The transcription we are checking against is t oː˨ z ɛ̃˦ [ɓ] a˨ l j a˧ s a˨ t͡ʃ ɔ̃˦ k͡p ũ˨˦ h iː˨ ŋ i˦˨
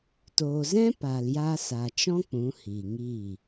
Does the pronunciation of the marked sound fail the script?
yes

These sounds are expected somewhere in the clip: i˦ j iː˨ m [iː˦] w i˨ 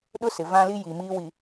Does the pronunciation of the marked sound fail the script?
no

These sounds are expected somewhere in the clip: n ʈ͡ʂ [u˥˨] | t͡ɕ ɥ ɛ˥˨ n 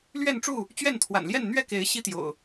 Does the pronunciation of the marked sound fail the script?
no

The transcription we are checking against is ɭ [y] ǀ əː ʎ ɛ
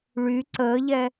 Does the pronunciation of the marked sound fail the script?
no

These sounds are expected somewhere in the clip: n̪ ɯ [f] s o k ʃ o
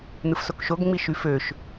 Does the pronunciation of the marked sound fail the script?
no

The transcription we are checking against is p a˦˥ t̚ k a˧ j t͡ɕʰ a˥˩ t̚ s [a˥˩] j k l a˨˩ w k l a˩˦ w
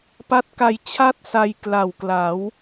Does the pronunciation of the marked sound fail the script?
yes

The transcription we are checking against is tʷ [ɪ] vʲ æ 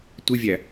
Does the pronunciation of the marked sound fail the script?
no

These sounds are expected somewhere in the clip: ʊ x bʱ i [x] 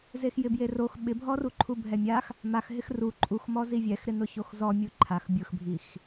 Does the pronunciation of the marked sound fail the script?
no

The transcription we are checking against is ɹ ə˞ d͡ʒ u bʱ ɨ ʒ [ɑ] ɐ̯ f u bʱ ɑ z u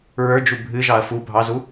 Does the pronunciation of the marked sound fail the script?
no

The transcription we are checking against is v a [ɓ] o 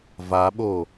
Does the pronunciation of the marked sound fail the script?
no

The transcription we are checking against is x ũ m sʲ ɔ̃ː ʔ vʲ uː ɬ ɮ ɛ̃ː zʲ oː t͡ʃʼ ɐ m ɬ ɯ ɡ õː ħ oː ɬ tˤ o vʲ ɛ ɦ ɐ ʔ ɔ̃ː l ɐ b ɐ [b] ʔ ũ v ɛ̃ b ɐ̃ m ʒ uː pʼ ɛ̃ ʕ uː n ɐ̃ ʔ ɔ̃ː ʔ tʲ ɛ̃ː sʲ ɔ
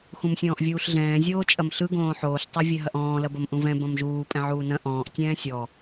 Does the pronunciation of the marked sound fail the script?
yes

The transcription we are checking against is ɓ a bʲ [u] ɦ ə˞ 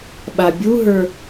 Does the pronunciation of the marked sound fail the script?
no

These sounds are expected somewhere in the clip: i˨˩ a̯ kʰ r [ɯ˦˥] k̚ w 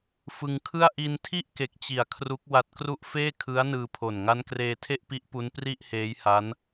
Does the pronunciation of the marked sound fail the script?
yes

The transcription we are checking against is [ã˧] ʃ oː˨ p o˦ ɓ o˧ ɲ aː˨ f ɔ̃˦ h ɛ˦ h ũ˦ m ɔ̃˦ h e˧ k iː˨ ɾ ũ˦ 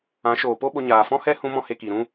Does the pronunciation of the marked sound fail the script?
yes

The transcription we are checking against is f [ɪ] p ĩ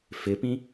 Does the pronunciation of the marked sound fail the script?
no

